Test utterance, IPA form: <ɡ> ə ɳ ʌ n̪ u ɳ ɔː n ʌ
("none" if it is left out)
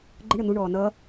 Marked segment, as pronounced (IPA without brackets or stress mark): ɡ͡ǃ